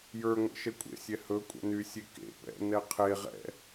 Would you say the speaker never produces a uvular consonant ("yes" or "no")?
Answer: no